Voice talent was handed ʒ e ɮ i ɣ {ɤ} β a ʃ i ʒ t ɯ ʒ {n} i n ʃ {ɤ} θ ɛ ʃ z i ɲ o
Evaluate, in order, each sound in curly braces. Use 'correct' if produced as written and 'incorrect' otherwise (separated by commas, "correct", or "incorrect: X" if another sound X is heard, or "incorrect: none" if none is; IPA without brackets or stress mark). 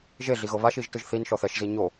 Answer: correct, incorrect: θ, incorrect: ɔ